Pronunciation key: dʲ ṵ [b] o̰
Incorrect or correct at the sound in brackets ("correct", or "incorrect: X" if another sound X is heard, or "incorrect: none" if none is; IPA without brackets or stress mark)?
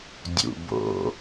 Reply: correct